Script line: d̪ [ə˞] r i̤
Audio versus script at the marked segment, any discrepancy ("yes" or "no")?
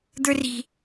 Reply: no